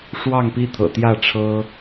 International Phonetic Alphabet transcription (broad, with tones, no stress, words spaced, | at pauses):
ʂwɑ˥˨ŋpi˥˨t̪ʰɤ̰˨˩ t̪jä˥˨ʈ͡ʂʰɤ˦